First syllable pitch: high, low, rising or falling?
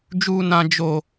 high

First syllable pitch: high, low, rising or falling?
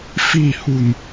low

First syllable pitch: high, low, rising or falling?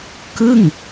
falling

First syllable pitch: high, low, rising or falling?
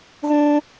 high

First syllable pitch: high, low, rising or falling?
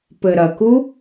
low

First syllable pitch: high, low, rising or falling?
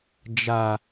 low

